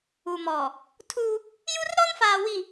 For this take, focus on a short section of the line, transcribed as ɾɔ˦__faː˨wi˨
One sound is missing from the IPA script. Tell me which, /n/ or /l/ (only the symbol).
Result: n